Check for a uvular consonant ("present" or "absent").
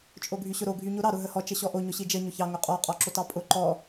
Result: present